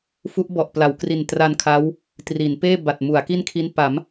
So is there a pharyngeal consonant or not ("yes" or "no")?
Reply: no